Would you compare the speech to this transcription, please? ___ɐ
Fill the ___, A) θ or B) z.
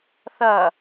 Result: A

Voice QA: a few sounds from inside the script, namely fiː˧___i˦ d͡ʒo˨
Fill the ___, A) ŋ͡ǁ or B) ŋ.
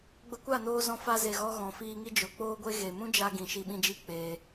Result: B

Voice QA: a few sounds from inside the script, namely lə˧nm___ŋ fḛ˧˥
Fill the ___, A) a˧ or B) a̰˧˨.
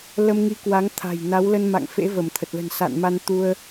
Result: B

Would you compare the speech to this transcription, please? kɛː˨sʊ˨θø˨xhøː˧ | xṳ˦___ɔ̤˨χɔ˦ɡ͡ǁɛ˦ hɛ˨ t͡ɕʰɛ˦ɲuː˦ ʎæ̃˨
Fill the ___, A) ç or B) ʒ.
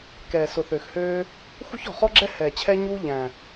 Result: A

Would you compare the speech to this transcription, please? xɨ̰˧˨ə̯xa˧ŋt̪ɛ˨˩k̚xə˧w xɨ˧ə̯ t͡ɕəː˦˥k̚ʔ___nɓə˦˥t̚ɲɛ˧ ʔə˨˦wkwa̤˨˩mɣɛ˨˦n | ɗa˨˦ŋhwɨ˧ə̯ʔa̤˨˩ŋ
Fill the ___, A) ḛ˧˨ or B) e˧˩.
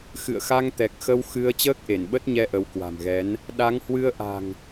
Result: B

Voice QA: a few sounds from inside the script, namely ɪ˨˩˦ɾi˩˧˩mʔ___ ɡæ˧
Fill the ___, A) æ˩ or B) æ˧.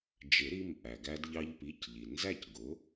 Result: A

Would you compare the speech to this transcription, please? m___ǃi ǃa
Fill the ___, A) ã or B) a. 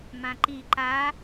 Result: A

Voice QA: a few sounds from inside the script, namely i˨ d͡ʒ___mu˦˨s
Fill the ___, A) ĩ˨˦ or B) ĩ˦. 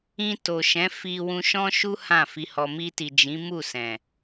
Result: A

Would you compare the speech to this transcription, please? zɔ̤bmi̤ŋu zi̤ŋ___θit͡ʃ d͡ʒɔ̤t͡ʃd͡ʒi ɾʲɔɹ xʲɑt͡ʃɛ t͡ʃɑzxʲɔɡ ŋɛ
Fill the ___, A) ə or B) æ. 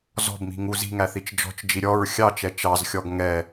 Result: B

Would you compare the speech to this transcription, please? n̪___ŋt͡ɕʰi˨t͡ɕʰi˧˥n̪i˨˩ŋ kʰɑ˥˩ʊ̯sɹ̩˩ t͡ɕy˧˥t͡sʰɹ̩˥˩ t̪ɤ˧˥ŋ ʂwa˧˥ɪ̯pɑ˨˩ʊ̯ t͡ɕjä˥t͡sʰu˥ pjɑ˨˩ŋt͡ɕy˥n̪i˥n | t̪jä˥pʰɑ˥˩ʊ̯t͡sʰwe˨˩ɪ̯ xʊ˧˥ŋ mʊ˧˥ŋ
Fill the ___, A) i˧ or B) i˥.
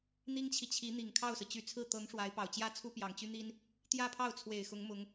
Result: B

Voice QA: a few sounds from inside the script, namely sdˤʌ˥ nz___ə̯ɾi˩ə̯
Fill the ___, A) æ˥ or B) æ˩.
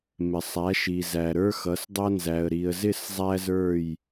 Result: B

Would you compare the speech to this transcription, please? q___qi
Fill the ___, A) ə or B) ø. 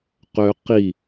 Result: B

